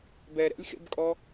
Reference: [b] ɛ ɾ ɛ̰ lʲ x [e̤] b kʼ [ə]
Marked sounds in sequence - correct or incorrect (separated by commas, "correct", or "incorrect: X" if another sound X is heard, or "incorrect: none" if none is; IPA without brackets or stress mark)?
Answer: correct, incorrect: ḛ, incorrect: ɔ